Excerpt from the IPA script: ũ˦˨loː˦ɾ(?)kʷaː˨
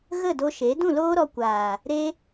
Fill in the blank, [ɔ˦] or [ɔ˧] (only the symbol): ɔ˧